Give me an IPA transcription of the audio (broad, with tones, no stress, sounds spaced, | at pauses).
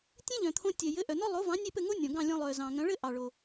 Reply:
tʲ ẽ˥ ʎ œ̃˩ t̪ʰ õ˧ tʲ œ˩ j ɘ˩˥ ʔ œ˩ n ɔ˥ lˠ o˩˥ v ɑ̃˩˥ nʲ e˥˩ p ɘ˥˩ ŋ o˥ nʲ ɔ̃˩ ɡ ɑ̃˥˩ lʲ ɔ̃˧ lˠ œ˩ z ɑ̃˩ ŋ œ̃˩˥ ɭ ɘ˥˩ ʔ ɑ˩ ɭ o˩